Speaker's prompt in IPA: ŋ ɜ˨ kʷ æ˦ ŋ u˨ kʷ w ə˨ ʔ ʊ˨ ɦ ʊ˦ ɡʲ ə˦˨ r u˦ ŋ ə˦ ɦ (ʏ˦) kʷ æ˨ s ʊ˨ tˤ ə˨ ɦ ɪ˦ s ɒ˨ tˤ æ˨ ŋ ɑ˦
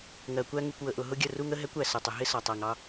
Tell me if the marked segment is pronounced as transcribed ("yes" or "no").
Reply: no